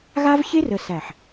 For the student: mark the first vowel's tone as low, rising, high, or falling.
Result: high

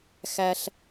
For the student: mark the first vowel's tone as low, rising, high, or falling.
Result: high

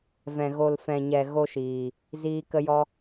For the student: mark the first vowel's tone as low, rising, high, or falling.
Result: low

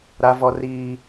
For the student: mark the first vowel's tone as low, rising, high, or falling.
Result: low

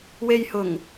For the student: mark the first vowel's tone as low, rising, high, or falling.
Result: low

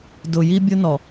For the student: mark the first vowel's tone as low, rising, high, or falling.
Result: low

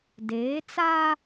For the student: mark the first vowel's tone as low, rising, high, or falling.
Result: rising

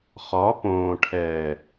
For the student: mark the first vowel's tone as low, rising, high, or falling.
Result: rising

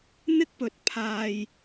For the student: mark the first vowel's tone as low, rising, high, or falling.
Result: high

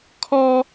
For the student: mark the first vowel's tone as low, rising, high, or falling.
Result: high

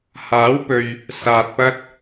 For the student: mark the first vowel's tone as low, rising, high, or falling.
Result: rising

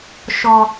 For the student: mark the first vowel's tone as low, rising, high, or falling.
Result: low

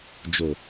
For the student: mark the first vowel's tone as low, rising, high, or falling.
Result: low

